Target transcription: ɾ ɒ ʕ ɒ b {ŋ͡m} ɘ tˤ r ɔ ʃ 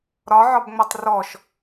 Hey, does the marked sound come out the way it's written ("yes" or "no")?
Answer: yes